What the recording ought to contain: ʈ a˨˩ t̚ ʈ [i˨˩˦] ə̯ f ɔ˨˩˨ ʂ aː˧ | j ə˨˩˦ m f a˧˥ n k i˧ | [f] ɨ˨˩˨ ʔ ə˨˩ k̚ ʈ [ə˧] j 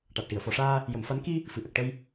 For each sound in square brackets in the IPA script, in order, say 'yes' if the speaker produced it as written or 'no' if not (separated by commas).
no, yes, yes